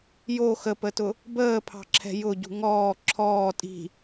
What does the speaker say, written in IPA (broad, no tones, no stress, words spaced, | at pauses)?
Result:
jo xəpətʊ | bəːpʰɑ̤ǁʰɛ̤ jʊɟṳ ŋɔː ǁʰɔː tʼi̤